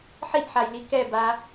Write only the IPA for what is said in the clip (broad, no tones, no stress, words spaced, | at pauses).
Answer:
ħiʔħajli kɛba